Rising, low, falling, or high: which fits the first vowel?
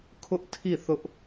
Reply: high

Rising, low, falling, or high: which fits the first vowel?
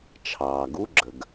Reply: low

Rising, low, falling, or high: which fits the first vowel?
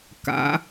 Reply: rising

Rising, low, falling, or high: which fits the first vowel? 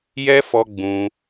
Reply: high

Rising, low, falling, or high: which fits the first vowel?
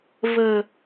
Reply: low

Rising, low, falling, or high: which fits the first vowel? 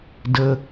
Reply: low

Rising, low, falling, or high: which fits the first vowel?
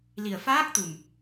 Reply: low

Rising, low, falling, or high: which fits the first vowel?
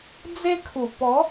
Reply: high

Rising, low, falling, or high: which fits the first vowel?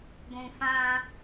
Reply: low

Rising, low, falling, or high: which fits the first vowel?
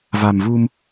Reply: low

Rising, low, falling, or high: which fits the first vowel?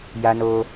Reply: high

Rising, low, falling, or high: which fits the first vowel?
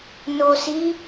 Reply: low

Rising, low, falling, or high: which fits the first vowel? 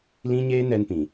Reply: high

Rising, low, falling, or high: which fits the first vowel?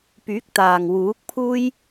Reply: rising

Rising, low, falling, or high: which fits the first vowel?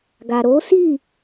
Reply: low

